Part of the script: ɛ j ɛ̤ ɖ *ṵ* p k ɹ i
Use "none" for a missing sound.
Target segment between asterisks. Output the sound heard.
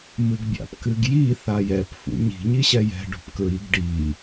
ṳ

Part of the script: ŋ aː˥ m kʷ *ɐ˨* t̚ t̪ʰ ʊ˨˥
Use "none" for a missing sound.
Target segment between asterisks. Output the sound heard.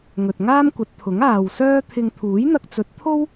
ɐ˨˥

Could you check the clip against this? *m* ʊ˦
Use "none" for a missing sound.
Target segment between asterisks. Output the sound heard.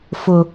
f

